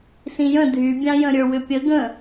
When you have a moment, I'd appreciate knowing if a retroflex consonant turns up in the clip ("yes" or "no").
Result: no